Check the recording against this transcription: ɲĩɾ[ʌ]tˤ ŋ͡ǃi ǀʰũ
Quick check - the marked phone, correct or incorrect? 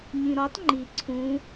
incorrect